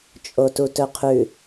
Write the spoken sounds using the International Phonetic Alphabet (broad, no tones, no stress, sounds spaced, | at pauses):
t͡ʃʼ o t u t ɵ qʰ ʉ